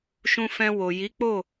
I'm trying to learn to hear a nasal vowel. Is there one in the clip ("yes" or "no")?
yes